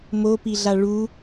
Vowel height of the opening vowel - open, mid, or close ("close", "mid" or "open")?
mid